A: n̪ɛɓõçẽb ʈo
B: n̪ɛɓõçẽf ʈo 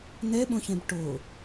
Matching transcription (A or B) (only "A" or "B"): A